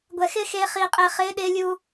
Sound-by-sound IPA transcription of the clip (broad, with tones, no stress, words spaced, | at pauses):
ɡʷɛ˨xɪː˦xeː˧ χiː˨qʼɪː˨ χɪː˨˦ɗɪː˧lʲuː˧